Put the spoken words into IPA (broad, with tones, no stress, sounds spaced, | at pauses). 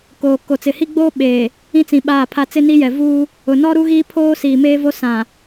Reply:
k oː˨ k o˨ t͡s ɪ˨ h i˦ ɡ͡b oː˦ ɓ eː˨ | ĩ˦ t͡s ĩ˨ ɓ aː˦˨ pʰ a˦ t͡s ɪ˦ n i˦ j ɛ˨ v uː˦ | ʊ˨ n ɔ˦ ɾ u˦ ɣ iː˦ pʰ oː˦ s iː˨ m eː˦ v o˦ s ã˨